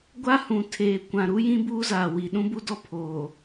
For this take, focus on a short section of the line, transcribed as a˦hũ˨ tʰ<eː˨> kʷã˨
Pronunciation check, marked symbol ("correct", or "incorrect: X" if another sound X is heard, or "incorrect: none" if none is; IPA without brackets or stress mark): correct